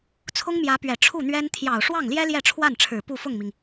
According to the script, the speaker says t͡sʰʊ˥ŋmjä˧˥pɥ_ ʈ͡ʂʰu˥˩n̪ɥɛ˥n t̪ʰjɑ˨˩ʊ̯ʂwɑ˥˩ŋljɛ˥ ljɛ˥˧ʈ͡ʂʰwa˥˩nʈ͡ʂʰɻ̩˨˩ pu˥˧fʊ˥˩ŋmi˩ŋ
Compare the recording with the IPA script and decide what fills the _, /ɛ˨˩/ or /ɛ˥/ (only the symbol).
ɛ˨˩